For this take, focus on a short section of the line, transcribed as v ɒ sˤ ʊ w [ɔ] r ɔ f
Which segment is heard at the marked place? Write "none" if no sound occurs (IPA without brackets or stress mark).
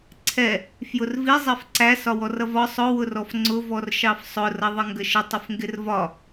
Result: ʊ